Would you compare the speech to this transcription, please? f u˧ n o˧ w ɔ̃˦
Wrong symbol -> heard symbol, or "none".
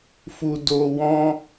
n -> d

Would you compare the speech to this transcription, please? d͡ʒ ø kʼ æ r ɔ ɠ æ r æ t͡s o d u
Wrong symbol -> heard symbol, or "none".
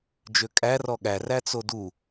none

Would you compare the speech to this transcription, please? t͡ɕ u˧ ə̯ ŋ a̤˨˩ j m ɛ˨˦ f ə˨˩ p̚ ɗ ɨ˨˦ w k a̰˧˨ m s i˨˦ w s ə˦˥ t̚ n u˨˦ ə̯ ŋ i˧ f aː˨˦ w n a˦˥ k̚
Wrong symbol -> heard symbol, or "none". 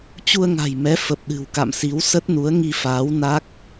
ɨ˨˦ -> ɨ̤˨˩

